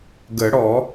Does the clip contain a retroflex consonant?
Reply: yes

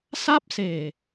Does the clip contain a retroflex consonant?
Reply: no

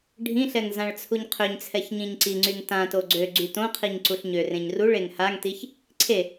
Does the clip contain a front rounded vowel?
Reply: yes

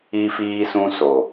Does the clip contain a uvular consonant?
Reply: no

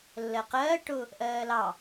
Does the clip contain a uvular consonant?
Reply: yes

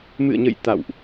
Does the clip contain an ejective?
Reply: no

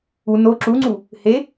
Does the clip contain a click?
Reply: yes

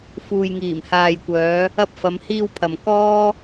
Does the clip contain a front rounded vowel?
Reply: yes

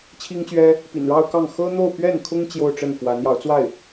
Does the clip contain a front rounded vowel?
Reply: no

